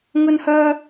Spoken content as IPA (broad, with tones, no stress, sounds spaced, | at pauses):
ŋ ɵ˥ n h œː˥